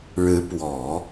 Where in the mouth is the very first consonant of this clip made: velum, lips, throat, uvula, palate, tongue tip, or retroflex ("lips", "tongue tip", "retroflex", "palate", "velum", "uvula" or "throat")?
retroflex